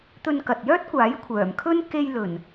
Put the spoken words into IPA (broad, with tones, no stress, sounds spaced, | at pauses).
t̪ ɵ˧ n k ɐ˨ t̚ j œː˥ t̚ kʷ aː˨˥ j kʷʰ œː˨˩ m kʰ ɵ˥ n k e˧ j l ɵ˨˩ n